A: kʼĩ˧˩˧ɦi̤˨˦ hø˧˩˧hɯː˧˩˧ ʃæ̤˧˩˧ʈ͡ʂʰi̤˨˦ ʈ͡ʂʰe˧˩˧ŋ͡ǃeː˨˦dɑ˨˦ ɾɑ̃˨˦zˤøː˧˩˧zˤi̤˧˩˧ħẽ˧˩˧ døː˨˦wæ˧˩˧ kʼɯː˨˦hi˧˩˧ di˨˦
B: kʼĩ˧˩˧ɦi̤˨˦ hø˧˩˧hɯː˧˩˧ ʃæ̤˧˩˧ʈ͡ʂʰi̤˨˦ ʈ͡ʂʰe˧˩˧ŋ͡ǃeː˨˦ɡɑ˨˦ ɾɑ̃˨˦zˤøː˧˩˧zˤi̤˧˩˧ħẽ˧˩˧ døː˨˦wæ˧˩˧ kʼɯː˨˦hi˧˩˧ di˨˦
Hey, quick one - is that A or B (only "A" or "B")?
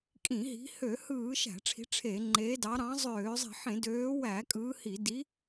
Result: A